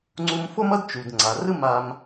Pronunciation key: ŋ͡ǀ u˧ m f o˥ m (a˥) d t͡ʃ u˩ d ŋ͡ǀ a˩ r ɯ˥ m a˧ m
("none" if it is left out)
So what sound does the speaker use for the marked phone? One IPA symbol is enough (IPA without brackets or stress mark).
ʌ˥